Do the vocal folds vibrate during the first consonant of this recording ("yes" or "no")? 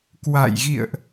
no